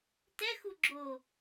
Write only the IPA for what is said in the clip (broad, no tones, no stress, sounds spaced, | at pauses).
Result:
t ɛ x u ɡ͡ǁ o